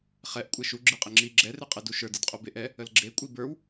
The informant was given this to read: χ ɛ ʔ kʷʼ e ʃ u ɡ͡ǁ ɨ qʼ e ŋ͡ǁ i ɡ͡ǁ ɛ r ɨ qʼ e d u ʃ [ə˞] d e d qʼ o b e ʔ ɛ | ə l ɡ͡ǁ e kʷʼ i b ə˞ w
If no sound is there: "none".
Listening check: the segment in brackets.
ə˞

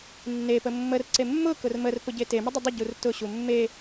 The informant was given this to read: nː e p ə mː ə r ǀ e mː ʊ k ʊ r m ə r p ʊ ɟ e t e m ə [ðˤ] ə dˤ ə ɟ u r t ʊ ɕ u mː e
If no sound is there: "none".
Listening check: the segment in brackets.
dˤ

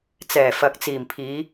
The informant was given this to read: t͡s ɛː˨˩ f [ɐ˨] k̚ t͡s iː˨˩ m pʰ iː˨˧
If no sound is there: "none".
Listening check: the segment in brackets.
ɐ˨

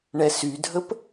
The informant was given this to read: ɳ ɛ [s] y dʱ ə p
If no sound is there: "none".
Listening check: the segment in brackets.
s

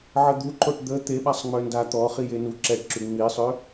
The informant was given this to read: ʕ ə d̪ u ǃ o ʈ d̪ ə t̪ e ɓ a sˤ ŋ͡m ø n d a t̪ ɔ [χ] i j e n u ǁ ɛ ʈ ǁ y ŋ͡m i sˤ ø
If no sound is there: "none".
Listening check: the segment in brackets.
χ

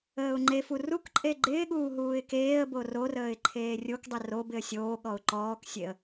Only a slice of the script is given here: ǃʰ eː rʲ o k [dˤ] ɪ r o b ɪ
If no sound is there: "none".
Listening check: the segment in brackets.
dˤ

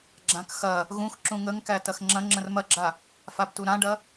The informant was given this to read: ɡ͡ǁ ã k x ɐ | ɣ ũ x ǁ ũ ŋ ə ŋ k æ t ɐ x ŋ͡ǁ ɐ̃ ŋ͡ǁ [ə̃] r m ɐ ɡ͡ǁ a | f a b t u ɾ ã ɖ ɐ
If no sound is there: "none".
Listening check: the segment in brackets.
ə̃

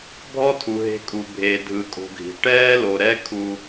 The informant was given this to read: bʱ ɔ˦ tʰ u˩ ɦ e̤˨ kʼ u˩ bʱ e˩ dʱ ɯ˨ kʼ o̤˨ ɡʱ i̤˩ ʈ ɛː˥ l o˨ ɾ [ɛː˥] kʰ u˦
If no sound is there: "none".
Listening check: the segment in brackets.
ɛ˥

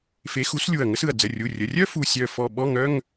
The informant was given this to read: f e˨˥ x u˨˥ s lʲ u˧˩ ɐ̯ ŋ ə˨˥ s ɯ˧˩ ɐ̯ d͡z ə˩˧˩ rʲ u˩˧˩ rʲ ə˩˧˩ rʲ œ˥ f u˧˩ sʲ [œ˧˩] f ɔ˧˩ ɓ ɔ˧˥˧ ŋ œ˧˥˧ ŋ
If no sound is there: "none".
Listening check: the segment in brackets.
œ˧˩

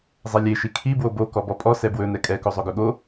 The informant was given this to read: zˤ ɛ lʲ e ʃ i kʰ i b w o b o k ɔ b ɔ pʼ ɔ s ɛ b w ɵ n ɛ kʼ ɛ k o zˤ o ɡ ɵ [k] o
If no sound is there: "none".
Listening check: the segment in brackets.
ɠ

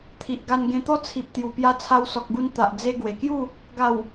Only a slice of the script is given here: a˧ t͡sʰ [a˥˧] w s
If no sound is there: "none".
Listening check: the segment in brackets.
a˧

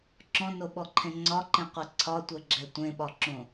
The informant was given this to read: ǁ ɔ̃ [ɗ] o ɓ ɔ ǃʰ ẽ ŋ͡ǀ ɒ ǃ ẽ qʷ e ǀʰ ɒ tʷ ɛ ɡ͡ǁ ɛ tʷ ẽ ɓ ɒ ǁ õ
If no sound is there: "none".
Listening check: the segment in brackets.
n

